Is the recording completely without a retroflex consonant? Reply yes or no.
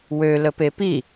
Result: yes